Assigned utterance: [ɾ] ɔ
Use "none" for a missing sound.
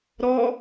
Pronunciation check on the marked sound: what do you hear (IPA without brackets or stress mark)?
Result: ɾ